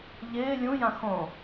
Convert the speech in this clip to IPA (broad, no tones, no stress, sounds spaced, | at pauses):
ʎ ɪː lʲ ũ j ã x õ